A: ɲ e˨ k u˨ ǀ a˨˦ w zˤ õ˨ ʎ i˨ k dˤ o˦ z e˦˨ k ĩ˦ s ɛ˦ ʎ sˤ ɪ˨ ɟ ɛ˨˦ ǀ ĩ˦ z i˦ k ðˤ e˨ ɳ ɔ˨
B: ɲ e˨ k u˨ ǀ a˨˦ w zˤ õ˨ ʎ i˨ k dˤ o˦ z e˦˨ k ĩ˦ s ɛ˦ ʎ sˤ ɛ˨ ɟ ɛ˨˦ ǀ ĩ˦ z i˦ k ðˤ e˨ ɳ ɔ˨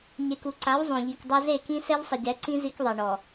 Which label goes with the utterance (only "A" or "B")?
A